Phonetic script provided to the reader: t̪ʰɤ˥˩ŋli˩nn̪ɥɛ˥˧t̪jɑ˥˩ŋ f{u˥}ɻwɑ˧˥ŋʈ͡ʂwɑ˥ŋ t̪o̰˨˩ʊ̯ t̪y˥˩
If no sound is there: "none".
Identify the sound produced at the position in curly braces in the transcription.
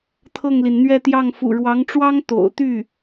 ṵ˨˩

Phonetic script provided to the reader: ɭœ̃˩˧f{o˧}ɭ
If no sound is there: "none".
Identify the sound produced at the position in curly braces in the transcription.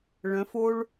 o˧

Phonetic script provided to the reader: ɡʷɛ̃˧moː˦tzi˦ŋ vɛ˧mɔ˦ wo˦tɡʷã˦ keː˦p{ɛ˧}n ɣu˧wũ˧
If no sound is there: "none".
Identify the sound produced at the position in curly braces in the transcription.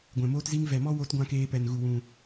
ɛ˧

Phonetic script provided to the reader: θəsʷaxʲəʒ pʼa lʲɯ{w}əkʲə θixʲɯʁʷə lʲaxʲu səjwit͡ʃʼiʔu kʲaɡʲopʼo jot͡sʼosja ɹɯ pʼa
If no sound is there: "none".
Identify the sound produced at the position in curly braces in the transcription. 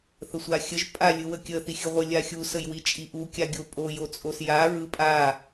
w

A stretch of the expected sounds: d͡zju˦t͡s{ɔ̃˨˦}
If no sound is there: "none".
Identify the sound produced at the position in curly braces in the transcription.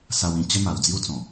ɔ̃˨˩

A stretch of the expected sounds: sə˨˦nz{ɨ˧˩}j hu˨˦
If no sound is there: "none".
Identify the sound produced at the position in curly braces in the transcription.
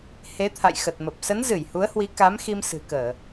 ɨ˧˩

